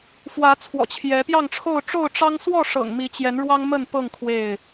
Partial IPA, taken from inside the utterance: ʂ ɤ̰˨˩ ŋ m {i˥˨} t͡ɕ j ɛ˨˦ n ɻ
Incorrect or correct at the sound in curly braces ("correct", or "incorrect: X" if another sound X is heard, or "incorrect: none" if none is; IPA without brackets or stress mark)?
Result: incorrect: i˨˦